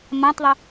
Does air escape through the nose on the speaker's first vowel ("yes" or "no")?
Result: yes